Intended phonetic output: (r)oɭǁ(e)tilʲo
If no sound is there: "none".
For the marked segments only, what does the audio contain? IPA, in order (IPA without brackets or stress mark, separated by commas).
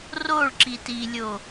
r, i